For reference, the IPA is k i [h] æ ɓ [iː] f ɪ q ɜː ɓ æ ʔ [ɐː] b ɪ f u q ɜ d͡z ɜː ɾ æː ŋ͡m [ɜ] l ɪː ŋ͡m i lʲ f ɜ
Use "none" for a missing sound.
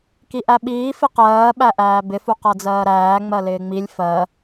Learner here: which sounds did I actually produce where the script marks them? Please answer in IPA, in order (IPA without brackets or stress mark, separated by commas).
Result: ʔ, iː, æː, ɜ